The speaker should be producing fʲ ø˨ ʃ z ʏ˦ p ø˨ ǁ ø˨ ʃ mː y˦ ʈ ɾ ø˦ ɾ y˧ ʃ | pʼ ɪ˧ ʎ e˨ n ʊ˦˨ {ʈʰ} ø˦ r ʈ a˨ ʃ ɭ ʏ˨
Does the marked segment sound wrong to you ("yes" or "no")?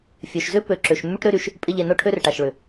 no